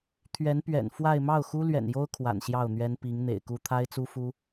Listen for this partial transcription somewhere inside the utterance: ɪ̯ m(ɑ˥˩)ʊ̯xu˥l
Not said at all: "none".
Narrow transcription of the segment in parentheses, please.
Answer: ɑ˥˩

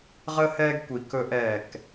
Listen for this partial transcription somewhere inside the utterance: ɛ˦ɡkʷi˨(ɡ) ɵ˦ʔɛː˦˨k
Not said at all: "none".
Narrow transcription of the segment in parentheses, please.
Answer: k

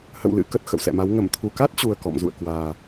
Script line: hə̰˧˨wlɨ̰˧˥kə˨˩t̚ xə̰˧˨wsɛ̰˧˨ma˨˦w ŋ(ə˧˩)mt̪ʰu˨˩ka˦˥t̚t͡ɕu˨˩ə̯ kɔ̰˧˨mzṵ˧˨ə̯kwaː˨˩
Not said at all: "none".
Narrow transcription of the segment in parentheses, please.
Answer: ə˧˩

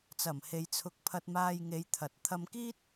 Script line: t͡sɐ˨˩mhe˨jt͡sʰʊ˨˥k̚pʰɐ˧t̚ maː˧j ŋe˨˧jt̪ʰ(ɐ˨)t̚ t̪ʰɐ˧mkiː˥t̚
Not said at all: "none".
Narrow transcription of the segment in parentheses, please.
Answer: ɐ˨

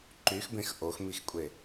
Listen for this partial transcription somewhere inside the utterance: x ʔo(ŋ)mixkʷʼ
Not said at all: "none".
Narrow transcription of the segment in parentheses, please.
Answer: x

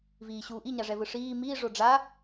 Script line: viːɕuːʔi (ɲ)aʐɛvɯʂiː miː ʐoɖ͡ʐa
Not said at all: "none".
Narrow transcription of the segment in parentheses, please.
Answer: ɲ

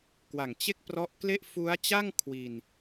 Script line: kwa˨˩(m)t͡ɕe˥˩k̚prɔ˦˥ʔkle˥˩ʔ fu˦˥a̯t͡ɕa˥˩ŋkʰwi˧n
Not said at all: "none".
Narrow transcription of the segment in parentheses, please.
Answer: ŋ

